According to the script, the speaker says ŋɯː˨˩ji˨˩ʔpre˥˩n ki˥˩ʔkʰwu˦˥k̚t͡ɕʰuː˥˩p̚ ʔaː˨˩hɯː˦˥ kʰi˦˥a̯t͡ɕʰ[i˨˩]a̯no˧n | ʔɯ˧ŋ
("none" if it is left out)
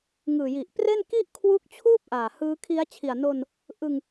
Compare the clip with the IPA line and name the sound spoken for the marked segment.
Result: i˨˩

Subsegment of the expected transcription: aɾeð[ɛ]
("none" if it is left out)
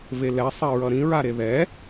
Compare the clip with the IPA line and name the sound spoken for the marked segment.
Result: ɛ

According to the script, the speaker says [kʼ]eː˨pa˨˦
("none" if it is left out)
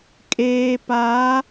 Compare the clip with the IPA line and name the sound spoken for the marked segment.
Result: kʼ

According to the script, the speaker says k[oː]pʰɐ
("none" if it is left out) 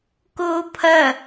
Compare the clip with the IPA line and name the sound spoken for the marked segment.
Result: oː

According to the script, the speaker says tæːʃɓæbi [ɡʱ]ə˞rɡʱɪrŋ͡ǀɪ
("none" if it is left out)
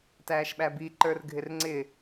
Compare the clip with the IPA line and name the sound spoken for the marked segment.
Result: ǃ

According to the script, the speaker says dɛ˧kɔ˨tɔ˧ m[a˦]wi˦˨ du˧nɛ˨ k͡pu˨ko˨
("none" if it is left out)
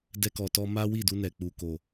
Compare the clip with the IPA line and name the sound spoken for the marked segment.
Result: a˦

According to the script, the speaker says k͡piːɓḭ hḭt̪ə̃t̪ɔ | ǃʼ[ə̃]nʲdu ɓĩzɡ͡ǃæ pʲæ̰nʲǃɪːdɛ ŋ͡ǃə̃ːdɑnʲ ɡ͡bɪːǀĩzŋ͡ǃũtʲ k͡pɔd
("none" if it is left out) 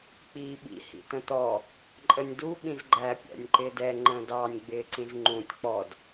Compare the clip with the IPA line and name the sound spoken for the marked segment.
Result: ə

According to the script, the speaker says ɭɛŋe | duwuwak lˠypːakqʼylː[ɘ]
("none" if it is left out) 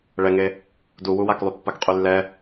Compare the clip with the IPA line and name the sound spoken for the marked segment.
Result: ɛ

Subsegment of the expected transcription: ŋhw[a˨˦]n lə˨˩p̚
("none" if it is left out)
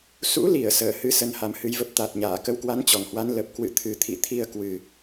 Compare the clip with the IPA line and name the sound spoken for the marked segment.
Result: a˨˦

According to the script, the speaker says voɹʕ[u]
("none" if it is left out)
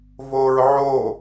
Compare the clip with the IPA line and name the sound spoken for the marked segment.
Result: o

